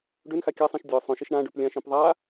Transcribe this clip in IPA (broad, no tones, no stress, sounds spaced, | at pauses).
ɖ ø n x a kʲ a sˤ ĩ ʃ dʲ œ sˤ œ̃ ʃ i ʃ ɳ ã ɖ ø p lʲ ã ʃ ĩ p ðˤ a